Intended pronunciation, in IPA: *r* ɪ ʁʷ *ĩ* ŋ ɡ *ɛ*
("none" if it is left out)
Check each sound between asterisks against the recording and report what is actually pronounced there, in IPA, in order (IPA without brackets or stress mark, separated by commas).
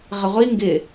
ʁ, i, ɪ